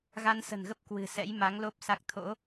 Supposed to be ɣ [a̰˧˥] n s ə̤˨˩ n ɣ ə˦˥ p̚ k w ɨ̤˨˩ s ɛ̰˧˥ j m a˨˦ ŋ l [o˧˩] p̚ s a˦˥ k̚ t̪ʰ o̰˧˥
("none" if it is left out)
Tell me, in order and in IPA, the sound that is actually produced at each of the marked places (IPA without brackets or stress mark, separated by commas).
a˧, o˦˥